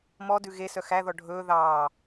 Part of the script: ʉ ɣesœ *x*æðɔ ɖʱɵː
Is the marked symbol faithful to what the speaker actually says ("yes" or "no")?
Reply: yes